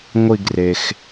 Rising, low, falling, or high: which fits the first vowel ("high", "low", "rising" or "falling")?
falling